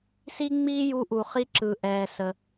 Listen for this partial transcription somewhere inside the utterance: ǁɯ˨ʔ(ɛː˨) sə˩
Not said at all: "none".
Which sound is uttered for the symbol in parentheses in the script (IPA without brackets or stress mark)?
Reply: ɛː˨